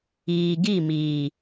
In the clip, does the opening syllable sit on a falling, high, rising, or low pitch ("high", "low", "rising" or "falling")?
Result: low